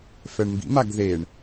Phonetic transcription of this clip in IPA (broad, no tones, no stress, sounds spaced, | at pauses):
f ɛ ɳ m b ḭ m a ɡ ð e ɳ